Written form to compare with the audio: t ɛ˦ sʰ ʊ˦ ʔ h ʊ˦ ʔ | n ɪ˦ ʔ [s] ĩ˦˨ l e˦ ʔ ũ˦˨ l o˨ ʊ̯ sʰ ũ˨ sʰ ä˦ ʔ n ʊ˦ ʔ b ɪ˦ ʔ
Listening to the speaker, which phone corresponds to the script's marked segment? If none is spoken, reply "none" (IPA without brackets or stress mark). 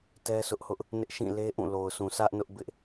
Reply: ʃ